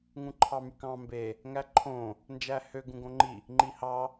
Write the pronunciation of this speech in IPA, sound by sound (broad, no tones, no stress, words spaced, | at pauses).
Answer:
ŋũǃʰɑmykɑ̃ mbe | ŋæǃʰõ | nd͡ʒæhø ɡũɡõŋ͡ǃi | ŋ͡ǃihɑ